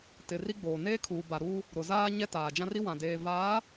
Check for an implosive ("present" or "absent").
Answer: absent